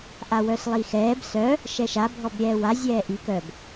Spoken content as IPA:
ʔawœslˠixɛːb sœ | ʃɛʃa bʱɔbɾʲɛːwa zʲɛːʔi kœb

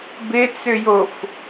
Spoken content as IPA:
bɪt͡sʏjof

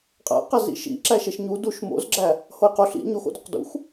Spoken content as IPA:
qʼæ̰qæ zḭʃḭ ǁæʃeʃɲu duʃ mo̰zɡ͡ǁæ | hojqoɬ ḭ ɲoxo̰doq dṵx

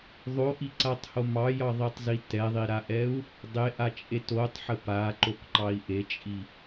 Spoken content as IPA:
ðˤoʔiǀatˤho mɑjɑðˤitˤzi tɛðˤiɾaʔɛu̯ | dˤeʔat͡ʃʼe totˤħə paǃokǃɑi̯ ʔet͡ʃʼi

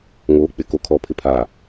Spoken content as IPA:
ŋoː˨˦k͡pɪ˨ko˨kʰɔ˨ pʰɪ˨pʰaː˨

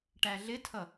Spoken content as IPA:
ʈæɮɪtʰʌ

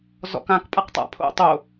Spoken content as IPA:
zɔ̰kãk pʼaqtˤa̰pʰo̰ tˤo

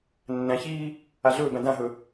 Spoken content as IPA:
nːæ̃çiː | aɮɵːbæ̃ dãɦɵ

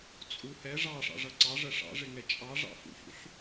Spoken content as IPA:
t͡sʼu hɛ ʐɑʂɑ̰ʐʌ ǀɑʐɜ ʂɑ̰ʐɪŋɛ t͡ʃʼɑʐɑ̰ fṵçṵɬ

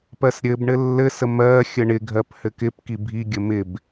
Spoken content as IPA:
pɜsɾʲɘb ɳɘlːɘsə mɜ xʲəɳɪɡʱɜp hɘkɪp kibʱi ɡʲəmɪb

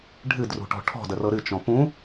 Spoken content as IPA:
ɖʱɨdrṳʈɔ̤ ʈʰɔ̤dərɤ ɾɨt͡ʃɔ̃ pũ

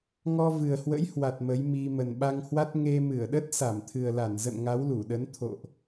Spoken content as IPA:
ŋɔ˧vɨ˨˩ə̯hwə̰˧˥jhwa˨˩t̚ mə˨˦jmi˧ mə˨˩nɓa˧ŋhwa˦˥t̚ ŋe˧ mɨ˧˩ə̯ɗə˦˥t̚ sa˧˩mt̪ʰɨ˨˩ə̯la˧˩nzə̰˧˨n ŋa˨˦wlu˧˩ɗə˨˦n t̪ʰo̰˧˨ʔ

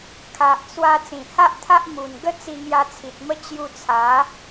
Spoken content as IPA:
kʰa˨ʔt͡swa˧ t͡sĩ˨˩ha˦ʔt̪ʰa˦ʔ mu˨˩n ɡə˥˧t͡si˧ ŋja˧t͡sʰi˨t̚mə˦ t͡ɕju˧t͡sʰa˨˦

